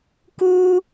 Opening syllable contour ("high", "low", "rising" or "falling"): high